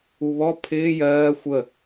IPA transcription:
u β ɔ pʰ ɪː j ɜː xʷ ə

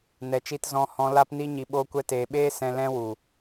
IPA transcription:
n ɛ˨ t͡ʃ i˧ t z ɔ̃˧ h ɔ̃˧ l aː˧ p n i˧ ɲ i˨ ɓ oː˧ kʷ ɛ˧ t eː˨ ɓ eː˦ s ɛ̃˧ l ɛ̃˦ w u˨

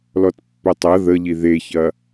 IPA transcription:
l ɔ t pː ɵ tˤ ɐ ð ə ʎ i ð e ç ɐ

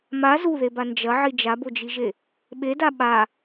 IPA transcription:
m a z u ð e b a n d͡ʒ ɐ ʕ i d͡ʒ a b o d͡ʒ i ʒ e | ɓ e d a ɓ a

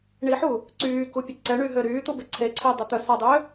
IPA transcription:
ɳ i ħ u | ǀ yː k u pʲ ə ǀ ɛ ɳ y ɦ ø ɾ yː t̪ u b e ǀʰ e ǀʰ e dˤ ə t̪ œ s ɔ dˤ ø

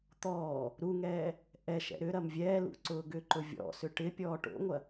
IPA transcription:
t̪ ɔː | ɾ u ŋ ɛː | ʔ ɛ ʃ ɛ̰ ɾ ʏ ɾ ɐ m vʲ ɛː l ṵ ǀ ʊː ɡ ʏ ǃ ʊ vʲ ɔ̰ s ʏ ʈ ɪ pʲ ɔː ʈ o̰ ŋʷ ɐ

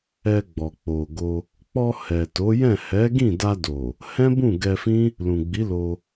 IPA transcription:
ɛ˧ ɡ͡b ɔ˨ k͡p o˨ ɡ o˧ | k͡p ɔ˧ h ɛ˨ t o˨˦ j ɛ̃˦˨ h ɛ˨˦ ɡ ĩ˦˨ d a˧ d o˨ | h ɛ̃˦ b ũ˦˨ ɡ ɛ˧ f ĩ˦ | l ũ˨ ɡ͡b i˨˦ l o˧

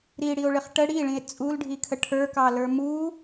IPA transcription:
ɾ i ɽ i o̯ ɭ ɪ χ ʈ ə ɽ i ɭ ĩ e̯ t͡sʼ u l ɖʱ i kʰ ə ʈʰ ə˞ k ɑ l ə˞ m u

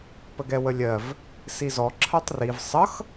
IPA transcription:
p ə ɡ ɛ w ə lʲ ɜ v | s i z ɔ ǁʰ ɜ tˤ r i v sˤ ʌ x

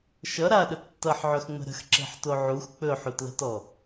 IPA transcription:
ʃ ʌ ɾ a ɗ ə tː ʌ ħ ʕ ɵ x ŋ͡m ə̤ ɾ ə̤ x ǁ e̤ ħ t o ʕ u x k͡p ɵ ħ u t l ə̤ t ɔ

